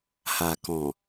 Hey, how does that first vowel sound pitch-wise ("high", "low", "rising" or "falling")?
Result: low